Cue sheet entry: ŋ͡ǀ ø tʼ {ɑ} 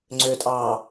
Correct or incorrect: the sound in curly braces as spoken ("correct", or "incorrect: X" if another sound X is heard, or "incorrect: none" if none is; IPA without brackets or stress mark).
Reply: incorrect: ɑː